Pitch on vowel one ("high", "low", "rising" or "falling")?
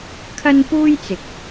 high